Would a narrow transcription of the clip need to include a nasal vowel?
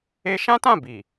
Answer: yes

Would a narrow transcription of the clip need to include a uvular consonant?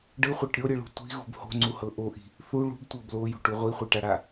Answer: yes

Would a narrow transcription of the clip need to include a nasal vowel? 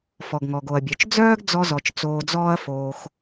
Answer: no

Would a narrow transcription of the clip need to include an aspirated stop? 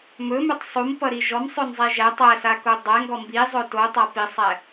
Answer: no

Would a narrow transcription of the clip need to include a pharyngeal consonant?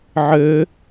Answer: yes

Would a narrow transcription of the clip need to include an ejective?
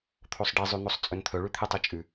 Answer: yes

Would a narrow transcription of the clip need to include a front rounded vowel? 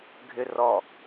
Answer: yes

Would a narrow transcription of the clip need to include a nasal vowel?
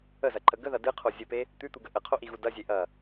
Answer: no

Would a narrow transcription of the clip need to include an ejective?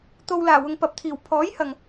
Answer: no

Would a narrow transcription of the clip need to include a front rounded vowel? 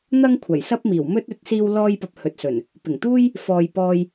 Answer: no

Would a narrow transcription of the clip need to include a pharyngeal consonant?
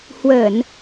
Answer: no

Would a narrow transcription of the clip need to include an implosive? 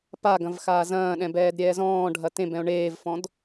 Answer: yes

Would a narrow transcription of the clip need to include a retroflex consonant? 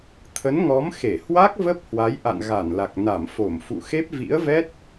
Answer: no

